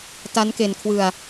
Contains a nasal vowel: no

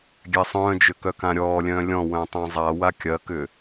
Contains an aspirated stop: no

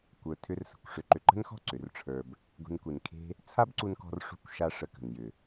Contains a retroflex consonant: yes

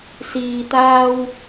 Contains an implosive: no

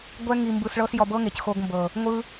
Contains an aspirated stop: no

